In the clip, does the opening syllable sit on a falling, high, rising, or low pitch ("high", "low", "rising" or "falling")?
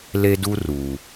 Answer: high